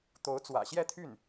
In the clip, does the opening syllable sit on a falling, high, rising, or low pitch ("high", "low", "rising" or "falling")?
rising